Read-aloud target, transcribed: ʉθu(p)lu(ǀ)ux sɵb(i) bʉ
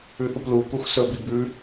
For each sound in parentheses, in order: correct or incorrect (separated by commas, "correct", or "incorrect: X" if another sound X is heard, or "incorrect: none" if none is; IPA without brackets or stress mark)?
correct, incorrect: k, correct